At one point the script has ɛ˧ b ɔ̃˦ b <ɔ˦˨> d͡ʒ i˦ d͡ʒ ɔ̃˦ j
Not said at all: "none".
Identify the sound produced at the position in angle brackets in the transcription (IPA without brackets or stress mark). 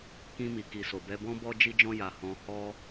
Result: ɔ˦